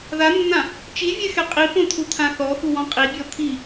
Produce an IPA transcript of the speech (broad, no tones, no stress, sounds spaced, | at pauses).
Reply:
ð a nː ã | t͡ʃ i vʲ ɛ x ɛ qʼ i p õ t̪ʰ u t̪ʰ ã θ ɔ x u w ɔ̃ qʼ i bʲ ɔ t̪ʰ i